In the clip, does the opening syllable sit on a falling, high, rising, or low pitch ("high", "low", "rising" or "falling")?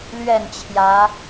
falling